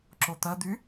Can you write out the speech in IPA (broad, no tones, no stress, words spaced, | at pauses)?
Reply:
ǁot̪ɐd̪y